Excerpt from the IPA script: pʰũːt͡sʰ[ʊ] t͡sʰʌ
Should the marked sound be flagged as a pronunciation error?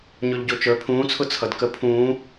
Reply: no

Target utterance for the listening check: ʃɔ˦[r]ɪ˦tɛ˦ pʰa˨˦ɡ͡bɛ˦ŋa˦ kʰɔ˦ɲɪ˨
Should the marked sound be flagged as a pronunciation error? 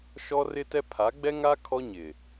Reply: no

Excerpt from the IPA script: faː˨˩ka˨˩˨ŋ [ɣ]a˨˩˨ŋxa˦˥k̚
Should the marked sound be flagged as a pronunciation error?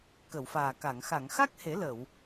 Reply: yes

